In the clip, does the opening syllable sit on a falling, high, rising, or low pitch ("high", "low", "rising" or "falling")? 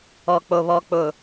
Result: low